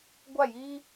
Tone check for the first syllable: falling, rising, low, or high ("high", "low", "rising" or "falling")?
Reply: falling